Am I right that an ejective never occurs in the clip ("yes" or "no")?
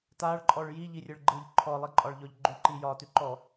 no